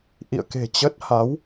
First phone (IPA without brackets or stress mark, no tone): ʔ